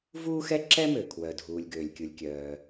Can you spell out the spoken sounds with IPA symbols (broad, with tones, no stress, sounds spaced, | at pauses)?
v uː˥ x ɛ˥ ǁ ɛ˥ m ø˩ kʰ w œ˩ dʱ uː˩ lʲ ɡ øː˩ lʲ kʲ u˩ lʲ kʲ œː˩